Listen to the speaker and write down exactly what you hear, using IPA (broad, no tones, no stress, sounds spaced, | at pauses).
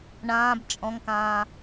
ɳ ãː b t͡ʃʼ ɔ̃ ŋ k ãː